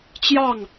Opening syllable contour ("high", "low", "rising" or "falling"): falling